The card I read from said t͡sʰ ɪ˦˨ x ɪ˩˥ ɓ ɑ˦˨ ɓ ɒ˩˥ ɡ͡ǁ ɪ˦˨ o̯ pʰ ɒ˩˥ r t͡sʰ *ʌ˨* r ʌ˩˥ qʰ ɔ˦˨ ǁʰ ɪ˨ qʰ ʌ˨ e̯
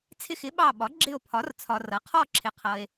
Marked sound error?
yes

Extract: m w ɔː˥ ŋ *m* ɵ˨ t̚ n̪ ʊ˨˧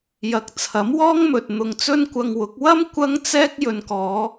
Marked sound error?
no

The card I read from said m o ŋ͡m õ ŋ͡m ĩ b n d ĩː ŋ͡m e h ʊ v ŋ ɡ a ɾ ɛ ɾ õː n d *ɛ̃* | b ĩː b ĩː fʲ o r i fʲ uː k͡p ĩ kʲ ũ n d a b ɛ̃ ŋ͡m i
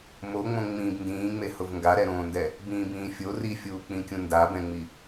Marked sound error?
yes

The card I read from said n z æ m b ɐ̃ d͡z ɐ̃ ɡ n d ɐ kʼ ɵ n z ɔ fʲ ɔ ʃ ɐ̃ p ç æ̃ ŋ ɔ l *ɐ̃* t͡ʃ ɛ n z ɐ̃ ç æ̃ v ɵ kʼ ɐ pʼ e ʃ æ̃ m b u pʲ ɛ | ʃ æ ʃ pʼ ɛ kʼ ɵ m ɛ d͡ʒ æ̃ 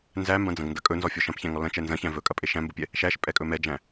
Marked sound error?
no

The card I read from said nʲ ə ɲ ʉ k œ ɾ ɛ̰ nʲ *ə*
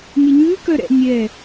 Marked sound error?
yes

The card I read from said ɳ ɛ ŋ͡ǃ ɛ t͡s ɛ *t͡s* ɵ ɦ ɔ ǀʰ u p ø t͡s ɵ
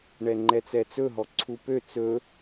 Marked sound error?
no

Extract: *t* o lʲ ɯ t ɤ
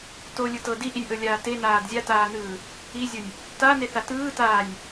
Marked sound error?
no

